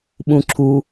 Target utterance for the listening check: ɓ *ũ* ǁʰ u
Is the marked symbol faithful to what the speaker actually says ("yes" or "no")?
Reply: yes